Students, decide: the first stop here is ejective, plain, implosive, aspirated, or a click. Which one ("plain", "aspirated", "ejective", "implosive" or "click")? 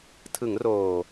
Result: aspirated